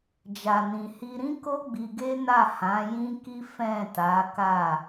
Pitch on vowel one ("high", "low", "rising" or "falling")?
low